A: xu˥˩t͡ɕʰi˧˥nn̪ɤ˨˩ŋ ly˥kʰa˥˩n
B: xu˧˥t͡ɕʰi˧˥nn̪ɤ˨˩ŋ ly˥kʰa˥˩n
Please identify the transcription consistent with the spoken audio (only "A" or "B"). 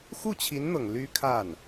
A